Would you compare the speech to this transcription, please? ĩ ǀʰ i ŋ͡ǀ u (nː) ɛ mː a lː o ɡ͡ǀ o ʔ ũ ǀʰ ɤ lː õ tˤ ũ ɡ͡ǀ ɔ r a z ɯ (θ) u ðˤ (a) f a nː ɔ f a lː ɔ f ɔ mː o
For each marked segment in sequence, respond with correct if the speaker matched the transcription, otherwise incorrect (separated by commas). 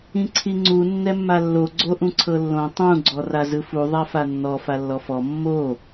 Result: correct, incorrect, correct